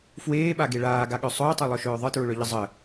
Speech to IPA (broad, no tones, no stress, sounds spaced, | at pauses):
f w eː ɓ a ɡ e ɭ aː ɡ a ɠ œ sˤ ʊː tˤ e lˠ œ ʃ œː ðˤ ɯ t ɹ ʊ ɭ œ ʎ ə zˤ ə